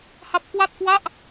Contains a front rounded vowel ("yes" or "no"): no